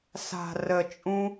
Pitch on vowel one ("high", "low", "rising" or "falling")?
low